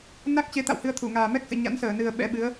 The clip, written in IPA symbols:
n a˦˥ k̚ t͡ɕ e˨˦ t̪ a̰˧˨ w h ɨ˧ ə̯ t̪ʰ u˧˩ ŋ aː˨˩ m ɛ˦˥ k̚ s ɨ̰˧˨ ɲ a̰˧˥ n s əː˧˩ n ɨ˨˩ ə̯ ɓ ɛ̰˧˥ ɓ ɨ˨˦ ə̯

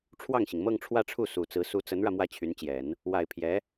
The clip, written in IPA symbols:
ʈ͡ʂʰ w ɑ˥˩ ŋ ɕ i˩ ŋ m ɤ˥˧ ŋ ʈ͡ʂʰ w ä˥˧ ʈ͡ʂʰ u˥˩ s u˨˩ t͡s ɹ̩˧˥ s u˧˥ t͡s ə˧˥ n ɻ ä˧ m w ä˥˩ t͡ɕʰ y˧˥ n t͡ɕ j ɛ˨˩˦ n | w a˨˩ ɪ̯ pʰ j ɛ˧˥

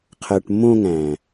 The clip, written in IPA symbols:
qʰ ɜ˨ ʈ mː õ˧ ŋ æ̃˨

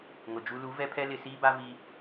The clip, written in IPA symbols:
ŋ ʊ˨ d͡ʒ u˦ l u˨˦ v ɛ˦ pʰ ɛ˦ l ɪ˨ s iː˦ b a˦ v i˦

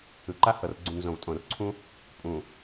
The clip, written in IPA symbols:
ɯ˨ ǃ a˦ h ɤ˨ r ɡ͡ǀ ũ˨ n z õ˨ v tʼ õ˨ r ǀʰ ũ˦ | pʼ ũ˨

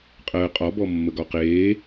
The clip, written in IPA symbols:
qʼ əː qʼ ɒ b ɔ mː ə ɡ ɒ q eː

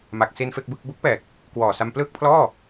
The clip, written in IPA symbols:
m a˨˩ k̚ s i˧ n f e˥˩ k̚ b ɯ˥˩ k̚ b u˦˥ k̚ p ɛː˨˩ k̚ | k w ɔː˨˩ s a˧ m p l ɯː˥˩ k̚ pʰ l ɔː˥˩

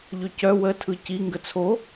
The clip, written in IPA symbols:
ʎ ʏ c œ w ə tʰ ɯ c i ŋ ɡ ə t͡sʰ o

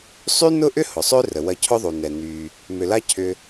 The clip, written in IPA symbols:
sˤ y˥ n ʊ˥ ʔ ʏ˥ h ʊ˩ sˤ ø˥ r ə˩ w ɐ˧ cʰ ʊ˥ ðˤ u˩ n ɛ˩ n y˩ | m ʏ˩ l a˥ cʰ ʏ˧

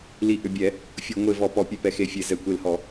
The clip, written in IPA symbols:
l i˧˩ ʔ ʏ˧˩ bʲ ɛ˧˩˧ | fʲ o˧˩˧ ŋʷ e˧˩ v ɔ˧˩˧ p ɔ˧˩˧ pʲ ø˧˩ p ɛ˧˩ x e˧˩ fʲ e˧˩˧ z ɛ˧˩ kʷ e˧˩ l h ɔ˧˩˧

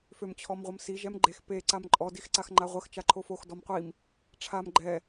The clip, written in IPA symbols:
f ø m t͡ɕʰ ɔ m ʁʷ ə m s i ʒ ɛ m ɡ͡ǃ e x p e ǀ a m ǃʼ ɔ d i x ǀ a x ŋ͡ǃ a ʁʷ ə x t͡ʃ a ǃʰ o f o x d ɔ m qʷ i m | ʈ͡ʂʰ a m ɡ͡ǃ ɛ

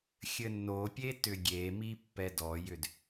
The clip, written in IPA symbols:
xʲ ɘ nː o pʲ e t ʏ ɡʲ e m i pː ɛ d ɔ j ʏ d

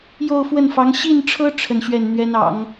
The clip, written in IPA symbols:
j o˥˧ ʊ̯ f w ə˥˩ n f ɑ˧˥ ŋ ɕ i˥˩ n ʈ͡ʂʰ ɤ˥ ʈ͡ʂʰ ə˥˧ n ɕ ɥ ɛ˥˩ n n̪ ɥ ɛ˥ n ɑ̰˨˩˦ ŋ

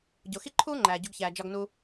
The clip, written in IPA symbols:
ɟ o˩ x i˥ ǃʰ uː˥ ŋ͡ǃ æː˩ ɟ u˨ ɡ ç æː˩ d͡ʒ ɒ˨ ɡ n uː˨

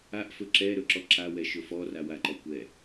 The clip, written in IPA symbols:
a ʔ f ɵ ǁ ɛ ɾ ɵ ǁ ɔ ǁ a w ɛ ʃ ɵ f ɔ r a w a ǃ ɔ kʷ ɛ

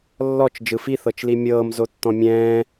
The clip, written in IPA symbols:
lː ɔ t͡ʃ d͡ʒ ɯ f i θ ɤ t͡ʃ l i mʲ ɤː m z o tː ɔ̃ mʲ ɛ̃ː

